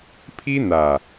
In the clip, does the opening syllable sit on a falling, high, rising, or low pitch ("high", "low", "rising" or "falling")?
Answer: high